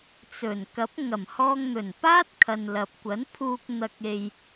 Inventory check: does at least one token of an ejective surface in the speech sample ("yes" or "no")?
no